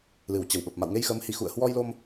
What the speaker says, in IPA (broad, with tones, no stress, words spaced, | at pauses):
lɨ˧˩wt͡ɕə˧˩wɓə˨˩p̚ ma̰˧˨wŋe˧jxəː˨˦mhi˧˩ xṵ˧˨ə̯hwɔ˧jlo˧m